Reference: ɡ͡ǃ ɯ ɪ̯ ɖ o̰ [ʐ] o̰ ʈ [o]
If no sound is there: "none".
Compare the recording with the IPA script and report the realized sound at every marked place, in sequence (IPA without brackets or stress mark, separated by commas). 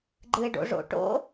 ʐ, o̰